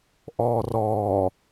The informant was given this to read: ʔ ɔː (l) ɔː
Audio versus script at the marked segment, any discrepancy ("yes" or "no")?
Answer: yes